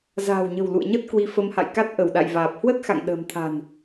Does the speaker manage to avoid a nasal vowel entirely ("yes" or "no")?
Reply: yes